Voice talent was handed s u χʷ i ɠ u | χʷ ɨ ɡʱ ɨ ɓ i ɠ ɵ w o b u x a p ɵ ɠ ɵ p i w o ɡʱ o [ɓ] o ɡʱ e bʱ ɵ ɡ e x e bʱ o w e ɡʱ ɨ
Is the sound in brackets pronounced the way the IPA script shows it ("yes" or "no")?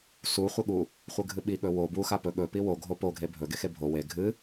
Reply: no